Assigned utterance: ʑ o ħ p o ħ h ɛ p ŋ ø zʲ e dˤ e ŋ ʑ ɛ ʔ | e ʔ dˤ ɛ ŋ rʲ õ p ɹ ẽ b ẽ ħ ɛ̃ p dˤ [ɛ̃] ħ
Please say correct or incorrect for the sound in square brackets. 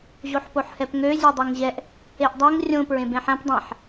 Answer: incorrect